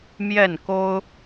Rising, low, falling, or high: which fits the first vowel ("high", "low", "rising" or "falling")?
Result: falling